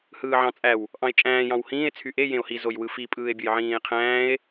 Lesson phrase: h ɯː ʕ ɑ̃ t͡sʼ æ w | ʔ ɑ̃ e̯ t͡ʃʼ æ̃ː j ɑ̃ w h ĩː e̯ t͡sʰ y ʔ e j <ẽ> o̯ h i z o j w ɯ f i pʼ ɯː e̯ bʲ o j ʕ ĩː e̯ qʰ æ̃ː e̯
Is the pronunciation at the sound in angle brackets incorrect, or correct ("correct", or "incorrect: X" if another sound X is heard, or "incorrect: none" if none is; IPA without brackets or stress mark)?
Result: correct